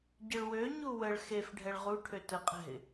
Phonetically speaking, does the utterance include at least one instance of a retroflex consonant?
yes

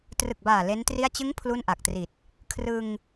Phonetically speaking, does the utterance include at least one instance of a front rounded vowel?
no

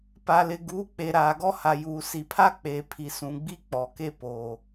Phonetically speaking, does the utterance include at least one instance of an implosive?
no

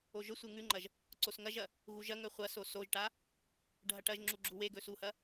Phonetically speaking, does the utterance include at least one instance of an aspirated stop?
no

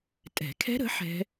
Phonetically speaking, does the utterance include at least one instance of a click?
no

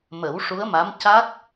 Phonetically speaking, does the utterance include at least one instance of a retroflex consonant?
yes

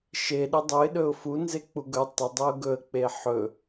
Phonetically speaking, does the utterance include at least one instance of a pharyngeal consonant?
yes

